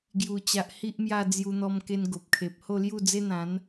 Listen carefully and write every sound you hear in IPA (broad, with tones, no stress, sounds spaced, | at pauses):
ɡ j u˨˩ t͡ɕ a˨ ʔ h i˦ ʔ m j a˥˧ d͡z j u˧ n̪ ɔ˧ m k e˧ n ɡ o˨ p̚ kʰ e˨ p̚ h o˥˧ l j u˥˧ d͡z e˦ n̪ ã˨˦ n